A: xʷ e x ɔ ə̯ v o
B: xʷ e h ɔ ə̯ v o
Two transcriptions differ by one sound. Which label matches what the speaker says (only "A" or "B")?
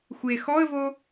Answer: A